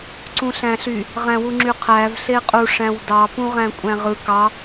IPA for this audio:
ǀ ũ ɬ æ̃ ɬ y | ʁ æ̃ w u ŋ͡ǁ y qʰ æ v ɬ e qʼ u ʂ æ̃ w d ɑ p ũ ʁ æ̃ kʷʼ æ̃ ʁ ɯ k ɑ

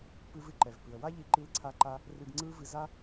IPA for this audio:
p ɨ˧ v ɨ˧ ǃ ɛ˩ v p ɨ˩ ə̯ w a˥ ʎ i˧ ǃ i˧ l ǀʰ a˧ ǃ a˧ | r ɨ˧ ɡ ŋ͡ǀ ɯ˥ v ɨ˧ z a˥

